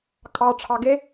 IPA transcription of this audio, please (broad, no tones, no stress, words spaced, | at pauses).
kʼɑ ʈ͡ʂʰɑɡe